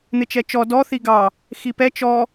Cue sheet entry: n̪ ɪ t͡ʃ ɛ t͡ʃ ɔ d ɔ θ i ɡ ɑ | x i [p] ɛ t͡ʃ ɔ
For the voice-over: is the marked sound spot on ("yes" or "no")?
yes